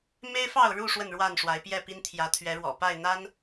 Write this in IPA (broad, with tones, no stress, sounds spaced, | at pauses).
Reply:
m e˦ ɪ̯ f ɑ˥˨ ʊ̯ ɻ u˥˨ ʂ w ə˥˨ n ɻ w a˥˨ n ʂ w a˨˦ ɪ̯ p j ɛ˥˨ p i˦ n t̪ʰ j ä˨˦ t̪ʰ ɥ ɛ˨˦ ɻ w ɔ̰˨˩ p a˥˨ ɪ̯ n̪ a˦ n